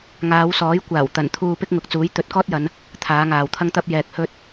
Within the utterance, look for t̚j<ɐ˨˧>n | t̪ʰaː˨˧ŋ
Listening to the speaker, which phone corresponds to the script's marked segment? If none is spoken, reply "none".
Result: ɐ˨˧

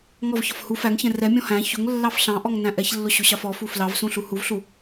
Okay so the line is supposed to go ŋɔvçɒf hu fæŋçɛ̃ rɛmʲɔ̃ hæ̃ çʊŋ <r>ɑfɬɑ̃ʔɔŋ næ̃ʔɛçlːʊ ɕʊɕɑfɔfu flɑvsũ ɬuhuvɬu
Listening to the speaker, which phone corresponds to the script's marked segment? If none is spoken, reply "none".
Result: lː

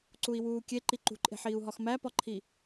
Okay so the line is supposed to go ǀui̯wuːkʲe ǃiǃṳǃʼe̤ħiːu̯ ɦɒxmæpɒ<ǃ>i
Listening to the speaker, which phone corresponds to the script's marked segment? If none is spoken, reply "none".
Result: ǃʰ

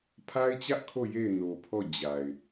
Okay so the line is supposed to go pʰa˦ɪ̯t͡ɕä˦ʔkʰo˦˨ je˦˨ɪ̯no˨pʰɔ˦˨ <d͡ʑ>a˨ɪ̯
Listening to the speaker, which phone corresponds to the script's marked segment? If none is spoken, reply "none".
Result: d͡ʑ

